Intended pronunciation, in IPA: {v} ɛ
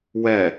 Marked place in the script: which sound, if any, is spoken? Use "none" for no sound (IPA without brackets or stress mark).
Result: w